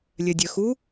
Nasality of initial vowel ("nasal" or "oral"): oral